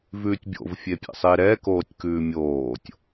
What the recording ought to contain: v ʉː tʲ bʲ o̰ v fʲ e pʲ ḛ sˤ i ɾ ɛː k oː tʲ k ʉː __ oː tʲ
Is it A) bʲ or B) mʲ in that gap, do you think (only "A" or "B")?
B